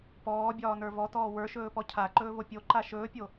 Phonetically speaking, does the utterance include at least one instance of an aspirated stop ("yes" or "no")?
yes